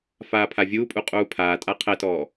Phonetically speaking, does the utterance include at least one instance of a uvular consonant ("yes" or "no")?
yes